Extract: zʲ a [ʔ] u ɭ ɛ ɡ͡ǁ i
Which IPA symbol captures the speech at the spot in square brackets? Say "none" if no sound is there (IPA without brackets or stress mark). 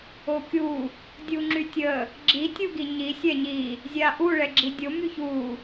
ʔ